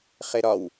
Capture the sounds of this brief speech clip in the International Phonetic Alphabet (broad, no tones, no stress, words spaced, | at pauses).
χeɾɒw